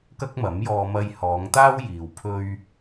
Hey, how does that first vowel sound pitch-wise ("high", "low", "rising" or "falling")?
high